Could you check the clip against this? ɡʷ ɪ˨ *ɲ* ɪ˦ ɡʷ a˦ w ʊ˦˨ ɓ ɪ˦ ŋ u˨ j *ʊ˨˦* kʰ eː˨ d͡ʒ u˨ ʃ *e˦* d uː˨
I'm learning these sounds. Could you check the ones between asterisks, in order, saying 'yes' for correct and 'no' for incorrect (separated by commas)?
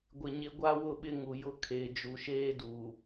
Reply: yes, no, no